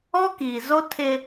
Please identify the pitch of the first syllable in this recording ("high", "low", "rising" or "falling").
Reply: high